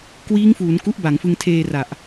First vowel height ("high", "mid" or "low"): high